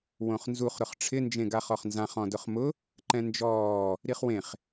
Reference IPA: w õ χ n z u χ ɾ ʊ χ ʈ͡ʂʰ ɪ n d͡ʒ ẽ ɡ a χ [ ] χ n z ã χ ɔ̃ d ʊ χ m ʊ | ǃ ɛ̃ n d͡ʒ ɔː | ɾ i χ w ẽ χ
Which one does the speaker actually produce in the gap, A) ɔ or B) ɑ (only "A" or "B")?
A